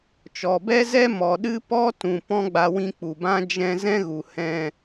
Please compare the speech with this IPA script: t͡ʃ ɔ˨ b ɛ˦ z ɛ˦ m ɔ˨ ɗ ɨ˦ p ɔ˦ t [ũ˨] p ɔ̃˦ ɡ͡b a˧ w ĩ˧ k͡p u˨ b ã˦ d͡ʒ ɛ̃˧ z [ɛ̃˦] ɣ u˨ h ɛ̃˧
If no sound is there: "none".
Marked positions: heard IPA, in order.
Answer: ũ˨, ɛ̃˦

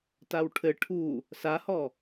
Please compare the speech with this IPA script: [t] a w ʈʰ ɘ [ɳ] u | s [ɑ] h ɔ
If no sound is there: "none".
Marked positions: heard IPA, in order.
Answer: t, ʈʰ, a

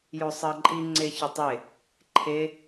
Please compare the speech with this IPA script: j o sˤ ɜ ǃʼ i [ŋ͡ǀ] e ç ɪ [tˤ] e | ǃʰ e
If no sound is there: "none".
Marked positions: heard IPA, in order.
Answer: ŋ͡ǀ, tˤ

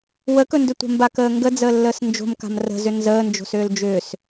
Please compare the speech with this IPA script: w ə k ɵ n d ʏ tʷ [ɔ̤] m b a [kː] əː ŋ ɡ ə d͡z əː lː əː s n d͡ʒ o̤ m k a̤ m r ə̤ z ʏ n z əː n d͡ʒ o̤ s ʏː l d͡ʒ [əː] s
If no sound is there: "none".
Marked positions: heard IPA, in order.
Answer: ə̤, k, ʏː

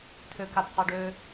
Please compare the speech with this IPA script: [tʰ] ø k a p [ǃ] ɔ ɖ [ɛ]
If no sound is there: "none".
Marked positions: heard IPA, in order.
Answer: tʰ, q, ø

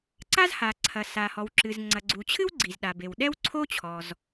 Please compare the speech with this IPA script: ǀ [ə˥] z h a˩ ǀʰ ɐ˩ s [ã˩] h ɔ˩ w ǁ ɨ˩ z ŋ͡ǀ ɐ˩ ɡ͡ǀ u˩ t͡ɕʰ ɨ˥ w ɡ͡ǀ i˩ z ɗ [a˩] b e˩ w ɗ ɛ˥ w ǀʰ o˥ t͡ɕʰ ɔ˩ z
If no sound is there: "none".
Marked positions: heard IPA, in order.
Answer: a˥, a˩, a˩

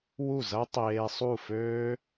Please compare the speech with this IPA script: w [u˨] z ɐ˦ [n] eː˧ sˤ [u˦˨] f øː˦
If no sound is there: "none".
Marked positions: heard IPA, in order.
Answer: u˦˨, tˤ, u˦˨

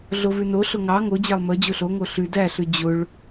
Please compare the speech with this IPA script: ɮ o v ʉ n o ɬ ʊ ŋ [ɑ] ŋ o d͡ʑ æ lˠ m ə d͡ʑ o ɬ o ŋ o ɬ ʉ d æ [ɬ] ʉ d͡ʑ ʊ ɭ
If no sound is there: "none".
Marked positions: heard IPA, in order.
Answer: ɑ, ɬ

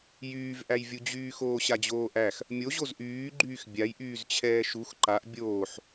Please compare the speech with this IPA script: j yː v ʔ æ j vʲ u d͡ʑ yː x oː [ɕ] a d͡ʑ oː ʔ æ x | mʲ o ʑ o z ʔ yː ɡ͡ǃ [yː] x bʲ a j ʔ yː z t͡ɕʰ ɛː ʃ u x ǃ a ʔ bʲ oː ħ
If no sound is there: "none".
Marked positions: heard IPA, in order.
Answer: ɕ, yː

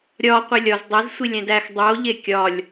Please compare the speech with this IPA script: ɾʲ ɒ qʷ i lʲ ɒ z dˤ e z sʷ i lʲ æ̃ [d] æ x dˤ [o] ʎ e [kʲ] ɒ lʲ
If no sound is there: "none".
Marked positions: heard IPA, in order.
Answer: d, o, kʲ

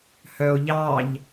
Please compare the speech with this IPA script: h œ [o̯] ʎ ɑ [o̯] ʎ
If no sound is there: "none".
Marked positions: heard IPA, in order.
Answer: o̯, none

